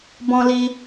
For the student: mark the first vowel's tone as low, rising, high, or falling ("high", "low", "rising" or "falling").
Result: high